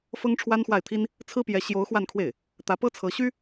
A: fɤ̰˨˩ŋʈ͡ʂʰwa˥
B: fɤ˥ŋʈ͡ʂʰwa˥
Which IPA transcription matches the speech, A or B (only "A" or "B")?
B